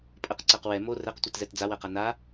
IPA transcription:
pʼ ə q ǀ ɜ q w ɛ m o r ɛ q tʷ ɛ t z ɛ t d͡z a w ɜ q a n a

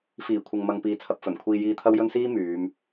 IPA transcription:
f iː˨˩ kʷʰ ɪ˨ ŋ m ɐ˨ ŋ p iː˨ t͡sʰ ɐ˨ p̚ f ɵ˨˩ n kʷʰ iː˧ j iː˧ t̪ʰ ɐ˥ w j ɵ˥ n s iː˥ m yː˨˧ m

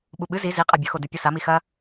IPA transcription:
ɓ u ɓ ɨ z i z i qʼ a bʲ ɵ x o d ʉ pʲ o s a m i x ɐ

